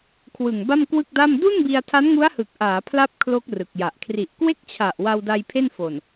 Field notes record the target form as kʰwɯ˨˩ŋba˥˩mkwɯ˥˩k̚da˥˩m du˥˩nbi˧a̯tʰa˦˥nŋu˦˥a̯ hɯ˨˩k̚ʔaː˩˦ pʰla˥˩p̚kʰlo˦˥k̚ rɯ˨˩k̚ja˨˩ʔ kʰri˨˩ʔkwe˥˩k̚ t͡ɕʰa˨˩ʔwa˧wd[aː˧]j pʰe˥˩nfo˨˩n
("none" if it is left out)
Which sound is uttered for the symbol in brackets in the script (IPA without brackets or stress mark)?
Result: a˧